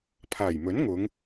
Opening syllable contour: low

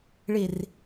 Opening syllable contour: low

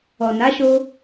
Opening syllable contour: low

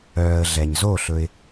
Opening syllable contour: low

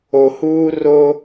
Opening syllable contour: low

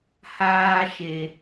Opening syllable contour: high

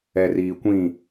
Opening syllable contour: low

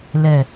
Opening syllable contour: low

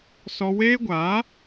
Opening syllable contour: high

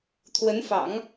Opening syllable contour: rising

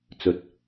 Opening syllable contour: low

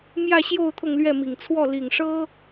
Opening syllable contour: falling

